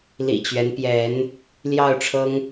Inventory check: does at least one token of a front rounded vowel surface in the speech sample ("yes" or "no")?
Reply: no